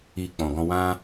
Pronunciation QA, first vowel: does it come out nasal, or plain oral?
oral